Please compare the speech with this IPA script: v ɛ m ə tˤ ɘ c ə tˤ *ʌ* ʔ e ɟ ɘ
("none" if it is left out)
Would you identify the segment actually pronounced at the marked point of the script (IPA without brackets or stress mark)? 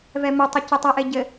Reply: ʌ